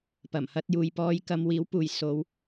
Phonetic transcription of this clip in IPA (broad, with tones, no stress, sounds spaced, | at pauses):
p ɐ˨˩ m h ɐ˧ t̚ j uː˨ j p ɔː˧ j k ɐ˧ m w iː˨˥ w p uː˨ j s o˨˧ w